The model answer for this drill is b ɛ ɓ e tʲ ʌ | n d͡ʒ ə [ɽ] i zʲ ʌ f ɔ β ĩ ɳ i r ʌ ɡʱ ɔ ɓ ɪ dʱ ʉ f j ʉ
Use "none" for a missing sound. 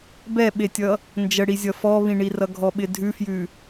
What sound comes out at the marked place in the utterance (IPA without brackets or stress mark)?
ɽ